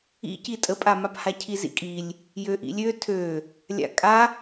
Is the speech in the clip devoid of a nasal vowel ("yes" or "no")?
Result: yes